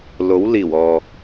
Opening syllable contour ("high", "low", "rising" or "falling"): rising